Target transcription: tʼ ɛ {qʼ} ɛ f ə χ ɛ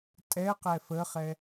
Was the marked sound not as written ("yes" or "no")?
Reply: yes